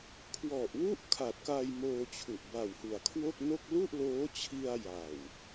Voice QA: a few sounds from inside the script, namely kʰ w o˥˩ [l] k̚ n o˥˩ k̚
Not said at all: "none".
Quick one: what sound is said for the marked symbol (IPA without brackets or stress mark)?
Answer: none